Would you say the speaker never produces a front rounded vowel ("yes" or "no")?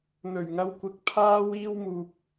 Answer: yes